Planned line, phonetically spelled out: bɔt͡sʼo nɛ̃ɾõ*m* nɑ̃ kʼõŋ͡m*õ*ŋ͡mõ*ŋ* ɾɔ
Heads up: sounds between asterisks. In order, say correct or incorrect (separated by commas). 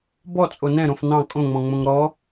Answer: incorrect, incorrect, correct